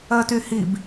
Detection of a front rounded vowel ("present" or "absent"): present